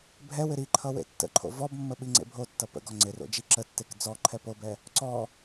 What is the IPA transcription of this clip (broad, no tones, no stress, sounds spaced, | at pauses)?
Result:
bʱ ɛ w ɪ ɾ i ǃʰ ʌ w ḛ tː ə̰ ǃʰ o̰ v ɔ b mː ə ɓ i ŋ͡ǀ ḛ bʱ o tː ʌ p ə̰ ɡ ɔ ŋ͡ǀ ɪ r o̰ d͡ʒ i ǁ ə tː e k d͡z ɔ ǃʰ ɛ p o b ɛ | ǀ ɔ